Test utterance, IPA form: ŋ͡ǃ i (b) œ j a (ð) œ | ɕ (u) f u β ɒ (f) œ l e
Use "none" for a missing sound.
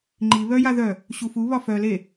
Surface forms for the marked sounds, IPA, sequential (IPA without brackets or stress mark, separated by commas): β, ð, u, f